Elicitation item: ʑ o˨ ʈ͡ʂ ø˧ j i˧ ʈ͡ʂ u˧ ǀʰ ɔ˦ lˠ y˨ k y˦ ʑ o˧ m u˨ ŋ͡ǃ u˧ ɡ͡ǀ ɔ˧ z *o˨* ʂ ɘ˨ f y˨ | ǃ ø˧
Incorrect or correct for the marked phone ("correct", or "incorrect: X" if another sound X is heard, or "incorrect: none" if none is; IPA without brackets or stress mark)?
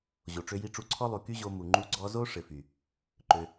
incorrect: o˦